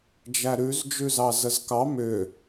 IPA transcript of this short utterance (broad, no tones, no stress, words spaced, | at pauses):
d͡ʒæɾʉz d͡ʒʉzɑzəzkɑ mʏ